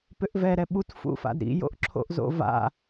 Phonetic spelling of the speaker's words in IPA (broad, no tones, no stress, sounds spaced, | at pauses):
p ʏ ʔ v ɛ ɾ ɛ ɓ u t f ṵ f a̰ d ɾ ḭ j o̰ ʔ ǁʰ o̰ ʔ z o̰ v a̰